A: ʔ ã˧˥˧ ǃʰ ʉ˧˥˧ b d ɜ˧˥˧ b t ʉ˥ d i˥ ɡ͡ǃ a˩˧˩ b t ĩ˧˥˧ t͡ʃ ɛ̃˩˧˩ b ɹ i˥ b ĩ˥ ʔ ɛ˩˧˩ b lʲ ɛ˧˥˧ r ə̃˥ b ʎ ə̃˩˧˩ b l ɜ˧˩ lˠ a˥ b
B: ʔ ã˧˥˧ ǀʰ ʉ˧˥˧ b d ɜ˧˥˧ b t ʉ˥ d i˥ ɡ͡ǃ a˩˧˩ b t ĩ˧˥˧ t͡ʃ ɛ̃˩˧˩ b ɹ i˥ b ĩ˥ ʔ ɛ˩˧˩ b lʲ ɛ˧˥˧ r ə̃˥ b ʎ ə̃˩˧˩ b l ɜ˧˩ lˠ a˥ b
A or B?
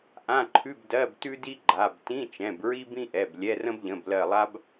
A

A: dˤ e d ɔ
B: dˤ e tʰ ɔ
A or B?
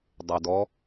A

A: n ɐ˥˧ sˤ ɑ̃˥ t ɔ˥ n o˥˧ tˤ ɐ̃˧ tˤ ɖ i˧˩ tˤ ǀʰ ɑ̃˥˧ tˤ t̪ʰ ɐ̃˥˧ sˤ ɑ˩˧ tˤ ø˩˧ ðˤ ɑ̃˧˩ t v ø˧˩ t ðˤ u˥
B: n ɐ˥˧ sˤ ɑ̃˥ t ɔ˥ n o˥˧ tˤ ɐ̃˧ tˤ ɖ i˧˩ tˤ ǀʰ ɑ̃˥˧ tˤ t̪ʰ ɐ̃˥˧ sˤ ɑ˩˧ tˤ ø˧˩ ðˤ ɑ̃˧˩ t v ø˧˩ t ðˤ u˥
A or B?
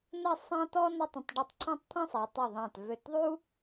B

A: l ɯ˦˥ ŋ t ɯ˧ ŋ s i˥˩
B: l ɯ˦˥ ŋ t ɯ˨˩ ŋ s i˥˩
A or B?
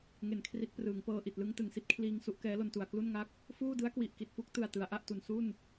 B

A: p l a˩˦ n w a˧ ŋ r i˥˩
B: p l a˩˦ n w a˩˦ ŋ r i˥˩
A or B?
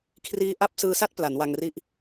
A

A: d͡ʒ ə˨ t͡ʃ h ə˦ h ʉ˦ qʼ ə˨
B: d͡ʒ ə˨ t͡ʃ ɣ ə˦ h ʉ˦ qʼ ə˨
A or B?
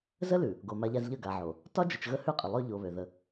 B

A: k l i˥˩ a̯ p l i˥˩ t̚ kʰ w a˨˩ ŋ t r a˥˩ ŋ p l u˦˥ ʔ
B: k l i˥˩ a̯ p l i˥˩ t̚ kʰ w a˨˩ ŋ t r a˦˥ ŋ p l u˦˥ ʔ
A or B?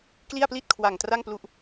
A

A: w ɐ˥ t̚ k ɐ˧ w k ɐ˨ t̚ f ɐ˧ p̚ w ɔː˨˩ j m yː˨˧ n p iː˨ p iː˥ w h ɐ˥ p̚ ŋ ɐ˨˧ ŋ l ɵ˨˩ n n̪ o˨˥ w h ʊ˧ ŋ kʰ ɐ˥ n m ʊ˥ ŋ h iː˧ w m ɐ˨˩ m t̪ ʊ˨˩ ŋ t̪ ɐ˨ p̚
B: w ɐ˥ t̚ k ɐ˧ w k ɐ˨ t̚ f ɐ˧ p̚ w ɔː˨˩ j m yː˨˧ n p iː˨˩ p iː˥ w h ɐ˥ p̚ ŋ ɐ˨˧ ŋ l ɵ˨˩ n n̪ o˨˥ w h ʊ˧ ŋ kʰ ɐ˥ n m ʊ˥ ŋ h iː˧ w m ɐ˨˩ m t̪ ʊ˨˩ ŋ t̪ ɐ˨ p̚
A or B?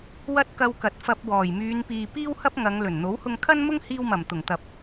A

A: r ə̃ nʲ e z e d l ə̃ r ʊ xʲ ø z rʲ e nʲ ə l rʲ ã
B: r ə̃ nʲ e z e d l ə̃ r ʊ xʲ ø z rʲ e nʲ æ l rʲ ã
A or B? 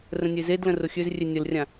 A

